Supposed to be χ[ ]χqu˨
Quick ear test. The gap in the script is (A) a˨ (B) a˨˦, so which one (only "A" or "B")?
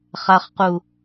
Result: A